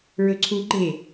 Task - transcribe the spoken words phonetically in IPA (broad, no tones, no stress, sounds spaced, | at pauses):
ɹ ɵ ǀʰ u ɡ͡ǃ e